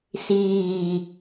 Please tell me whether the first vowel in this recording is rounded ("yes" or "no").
no